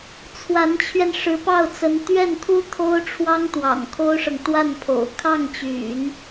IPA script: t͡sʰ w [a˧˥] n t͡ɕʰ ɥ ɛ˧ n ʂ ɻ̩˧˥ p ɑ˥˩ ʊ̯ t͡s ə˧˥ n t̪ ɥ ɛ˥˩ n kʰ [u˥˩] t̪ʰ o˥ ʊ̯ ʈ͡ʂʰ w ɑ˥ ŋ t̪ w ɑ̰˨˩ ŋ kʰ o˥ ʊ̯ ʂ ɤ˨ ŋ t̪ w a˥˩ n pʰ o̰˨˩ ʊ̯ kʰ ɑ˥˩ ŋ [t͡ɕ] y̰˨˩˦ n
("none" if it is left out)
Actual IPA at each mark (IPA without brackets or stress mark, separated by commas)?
a˧˥, u˥, t͡ɕ